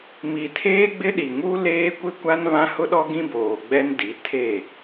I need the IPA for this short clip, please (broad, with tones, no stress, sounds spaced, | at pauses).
m i˨ tʰ eː˦ ɡ͡b ɪ˦ ɗ i˨ ŋ u˦ l eː˦ kʷ ɪ˦ kʷ a˦ n β ã˦ h ʊ˦ ɗ ɔ˦ ɡ ĩ˦ b oː˨ ɡ͡b ɛ˦ n d i˨˦ tʰ e˦˨